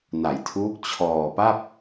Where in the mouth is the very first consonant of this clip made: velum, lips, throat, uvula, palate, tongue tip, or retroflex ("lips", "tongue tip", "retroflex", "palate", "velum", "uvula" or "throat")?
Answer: tongue tip